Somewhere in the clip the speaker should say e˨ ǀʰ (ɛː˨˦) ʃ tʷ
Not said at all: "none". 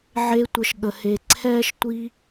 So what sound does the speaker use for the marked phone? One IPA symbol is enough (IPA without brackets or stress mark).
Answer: ɛː˦